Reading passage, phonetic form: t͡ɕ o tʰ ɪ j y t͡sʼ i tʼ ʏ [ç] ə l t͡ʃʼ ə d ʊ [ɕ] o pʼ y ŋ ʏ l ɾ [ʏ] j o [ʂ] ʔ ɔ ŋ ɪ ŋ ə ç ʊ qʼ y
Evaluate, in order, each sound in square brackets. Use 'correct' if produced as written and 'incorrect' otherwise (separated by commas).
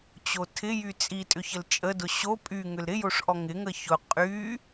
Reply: correct, correct, incorrect, correct